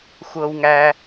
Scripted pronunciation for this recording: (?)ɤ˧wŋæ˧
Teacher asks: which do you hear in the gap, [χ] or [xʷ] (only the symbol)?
xʷ